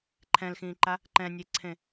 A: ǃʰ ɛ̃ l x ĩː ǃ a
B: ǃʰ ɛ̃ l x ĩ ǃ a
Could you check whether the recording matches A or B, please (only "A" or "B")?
A